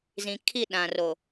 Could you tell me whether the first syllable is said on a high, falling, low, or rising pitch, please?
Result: low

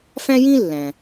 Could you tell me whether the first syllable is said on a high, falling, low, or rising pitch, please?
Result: high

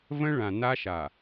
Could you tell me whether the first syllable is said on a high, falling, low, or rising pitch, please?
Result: high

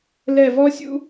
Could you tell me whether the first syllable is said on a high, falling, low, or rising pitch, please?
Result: falling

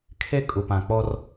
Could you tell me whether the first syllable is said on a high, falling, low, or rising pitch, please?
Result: high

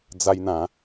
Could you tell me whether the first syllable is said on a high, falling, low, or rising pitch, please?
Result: high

